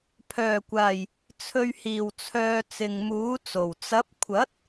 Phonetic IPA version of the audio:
pʰœː˨˩kʷaː˨˩j | t͡sʰɵ˨ɥhiː˨˩wt͡sʰœː˨ t͡sɪ˨ŋmuː˨˥t͡so˨˩w t͡sɐ˨˥p̚kʷʰɐ˨˥t̚

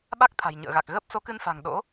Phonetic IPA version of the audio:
ɓa˦˥k̚t̪ʰa̤˨˩jɲɨ̰˧˨ə̯ɣa˨˩k̚ ɣəː˦˥p̚so˨˦kɨ˧nfa̤˨˩ŋ ɗo̰˧˥

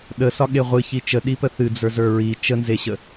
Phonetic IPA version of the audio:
ɗəsɒ ɠeʁʷɨ çit͡ʃə ɗipəθɨ d͡zə˞zə˞ɹi t͡ʃənzeɕə

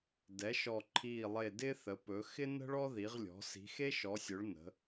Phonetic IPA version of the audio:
dɛ˩˧ʃɔ˨˩ǃʰiː˨˩lˠe˨˩ dɪː˦θə˩˧pɵ˩˧ xɪ˦nə̤˦ɭ ɔ˦ði˩˧ʁlʲɔ̤˩˧ si̤˩˧xe˦ʃɔ˩˧sʲɵ˩˧ɭ nə̤˩˧

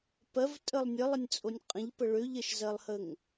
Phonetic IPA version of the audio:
pɜvtʼəlˠ nʲəlˠənʲt͡sʼonʲ qʼə̃ʎpə ɭøʎɜʃzɜlˠhəŋ

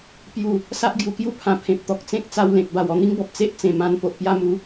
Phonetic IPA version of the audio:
pju˥˧ | sa˦ʔɡju˨˩kju˥˧pʰã˨˩ pʰẽ˨p̚t̪ɔ˨k̚ t͡sẽ˦k̚t͡sa˧wlẽ˨k̚ ba˨˩wɔ˥˧n̪i˦ŋbɔ˨p̚ t͡se˦ʔ t͡sẽ˨˩mã˧n po˨ʔpja˧mu˨˦

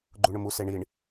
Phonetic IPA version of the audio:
ɡ͡ǃuɳʊmu seɳiɳ

